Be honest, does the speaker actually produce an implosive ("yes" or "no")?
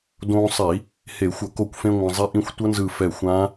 no